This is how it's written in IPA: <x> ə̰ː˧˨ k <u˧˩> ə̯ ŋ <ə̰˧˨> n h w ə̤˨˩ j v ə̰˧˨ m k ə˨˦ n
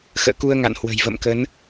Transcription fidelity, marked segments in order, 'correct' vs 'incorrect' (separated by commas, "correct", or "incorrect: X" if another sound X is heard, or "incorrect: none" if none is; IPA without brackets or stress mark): correct, incorrect: u˧, incorrect: a̰˧˨